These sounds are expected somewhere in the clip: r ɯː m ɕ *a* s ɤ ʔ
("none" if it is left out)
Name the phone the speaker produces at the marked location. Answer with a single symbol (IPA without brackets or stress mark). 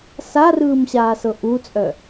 aː